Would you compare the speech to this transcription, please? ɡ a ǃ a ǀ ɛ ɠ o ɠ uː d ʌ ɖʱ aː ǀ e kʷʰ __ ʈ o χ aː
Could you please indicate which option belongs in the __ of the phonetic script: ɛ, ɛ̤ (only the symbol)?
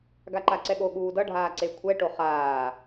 ɛ